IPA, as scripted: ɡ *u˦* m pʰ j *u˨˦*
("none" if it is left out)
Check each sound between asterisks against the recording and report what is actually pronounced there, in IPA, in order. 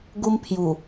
u˦, u˨˩

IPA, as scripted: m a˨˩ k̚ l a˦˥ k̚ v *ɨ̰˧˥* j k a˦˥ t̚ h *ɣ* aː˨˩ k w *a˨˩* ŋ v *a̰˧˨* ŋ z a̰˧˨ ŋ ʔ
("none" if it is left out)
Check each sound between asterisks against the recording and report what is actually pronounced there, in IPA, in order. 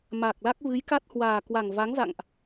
ɨ˨˦, w, a˨˩, a˨˦

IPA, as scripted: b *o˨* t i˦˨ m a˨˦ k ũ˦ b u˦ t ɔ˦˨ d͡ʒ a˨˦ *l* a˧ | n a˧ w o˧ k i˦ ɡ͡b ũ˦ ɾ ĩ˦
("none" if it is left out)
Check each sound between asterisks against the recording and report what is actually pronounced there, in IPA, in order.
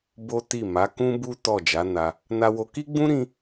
o˦, n

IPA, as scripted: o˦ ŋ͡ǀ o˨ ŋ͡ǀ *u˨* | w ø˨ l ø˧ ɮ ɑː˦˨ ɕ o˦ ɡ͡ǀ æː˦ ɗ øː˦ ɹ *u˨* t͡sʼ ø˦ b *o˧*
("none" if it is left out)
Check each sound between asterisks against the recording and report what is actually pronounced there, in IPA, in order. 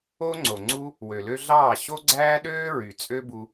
u˦, y˨, u˧

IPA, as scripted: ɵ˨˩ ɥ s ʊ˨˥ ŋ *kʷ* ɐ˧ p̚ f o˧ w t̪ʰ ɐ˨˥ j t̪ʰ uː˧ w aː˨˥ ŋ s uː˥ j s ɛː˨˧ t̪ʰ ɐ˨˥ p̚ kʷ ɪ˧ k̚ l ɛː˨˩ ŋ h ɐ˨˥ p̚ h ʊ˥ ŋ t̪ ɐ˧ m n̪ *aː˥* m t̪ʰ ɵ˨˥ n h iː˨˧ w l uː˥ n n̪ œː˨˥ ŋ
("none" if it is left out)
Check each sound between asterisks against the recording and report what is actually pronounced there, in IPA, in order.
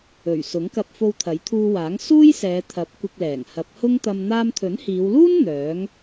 k, aː˧

